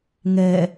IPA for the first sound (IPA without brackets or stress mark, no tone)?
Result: ŋ